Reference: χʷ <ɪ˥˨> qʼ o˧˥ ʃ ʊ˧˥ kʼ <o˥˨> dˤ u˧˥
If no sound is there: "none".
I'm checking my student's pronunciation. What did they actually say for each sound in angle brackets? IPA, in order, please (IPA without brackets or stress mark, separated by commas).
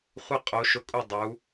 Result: ɪ˥˨, u˥˨